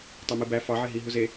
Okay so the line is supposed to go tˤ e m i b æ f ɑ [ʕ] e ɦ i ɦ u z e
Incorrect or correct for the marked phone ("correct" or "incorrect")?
correct